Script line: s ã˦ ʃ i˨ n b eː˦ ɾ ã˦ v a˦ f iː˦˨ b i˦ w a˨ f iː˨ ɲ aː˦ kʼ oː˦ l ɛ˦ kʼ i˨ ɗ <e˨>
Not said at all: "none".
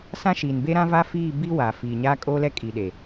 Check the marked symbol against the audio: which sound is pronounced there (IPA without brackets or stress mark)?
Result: e˨